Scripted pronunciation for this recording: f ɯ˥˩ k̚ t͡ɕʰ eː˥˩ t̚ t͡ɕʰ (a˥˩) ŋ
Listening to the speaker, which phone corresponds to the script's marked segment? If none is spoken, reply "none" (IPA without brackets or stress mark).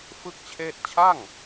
a˥˩